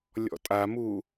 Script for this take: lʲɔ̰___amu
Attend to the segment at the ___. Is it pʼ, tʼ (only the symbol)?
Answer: tʼ